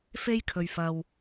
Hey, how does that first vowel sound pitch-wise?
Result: high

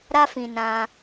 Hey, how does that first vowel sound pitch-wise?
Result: high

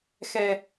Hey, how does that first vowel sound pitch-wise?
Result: low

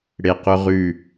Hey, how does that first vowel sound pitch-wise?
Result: low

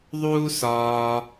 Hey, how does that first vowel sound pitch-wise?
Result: high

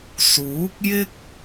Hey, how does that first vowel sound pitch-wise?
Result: rising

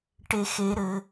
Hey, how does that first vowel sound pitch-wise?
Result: low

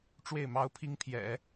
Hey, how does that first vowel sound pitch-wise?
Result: falling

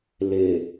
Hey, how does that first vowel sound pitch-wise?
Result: low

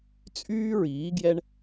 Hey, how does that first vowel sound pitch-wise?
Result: high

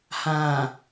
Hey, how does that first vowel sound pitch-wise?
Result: low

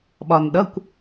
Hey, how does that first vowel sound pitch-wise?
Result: low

